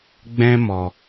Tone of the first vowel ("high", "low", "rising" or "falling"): high